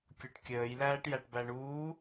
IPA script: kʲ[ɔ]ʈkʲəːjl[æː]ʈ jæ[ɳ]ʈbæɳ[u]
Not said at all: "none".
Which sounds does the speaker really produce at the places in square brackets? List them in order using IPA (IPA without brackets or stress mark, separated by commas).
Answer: ɔ, æː, none, uː